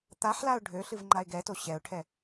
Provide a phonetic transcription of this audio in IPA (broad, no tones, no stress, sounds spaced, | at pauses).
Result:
t̪ a ħ l a ʊ̯ ɖʱ ø ɬ ɨ v ŋ͡ǃ a ɪ̯ ɡ ɛ t o ɕ ɛ ʊ̯ ʈʰ ɛ